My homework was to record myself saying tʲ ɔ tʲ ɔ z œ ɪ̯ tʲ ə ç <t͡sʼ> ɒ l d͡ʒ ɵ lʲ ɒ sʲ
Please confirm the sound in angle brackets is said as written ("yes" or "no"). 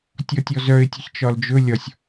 no